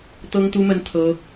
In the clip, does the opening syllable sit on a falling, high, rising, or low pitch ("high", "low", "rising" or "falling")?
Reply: high